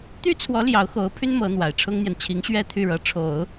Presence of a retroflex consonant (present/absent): present